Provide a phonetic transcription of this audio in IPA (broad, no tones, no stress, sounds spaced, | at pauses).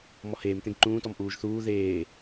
m ɔ h eː m t ẽ ɡ ǃ ũː t ɔ m ʔ uː ʒ θ uː ð eː